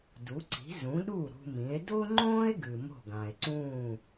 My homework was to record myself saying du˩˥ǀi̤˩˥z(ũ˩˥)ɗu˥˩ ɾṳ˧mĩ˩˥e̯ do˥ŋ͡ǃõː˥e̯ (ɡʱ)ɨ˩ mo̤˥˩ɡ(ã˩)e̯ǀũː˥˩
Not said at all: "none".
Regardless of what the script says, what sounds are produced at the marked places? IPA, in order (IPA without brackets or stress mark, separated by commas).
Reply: ũ˩˥, ɡ, ã˩